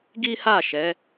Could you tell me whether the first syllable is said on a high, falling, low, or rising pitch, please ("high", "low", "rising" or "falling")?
high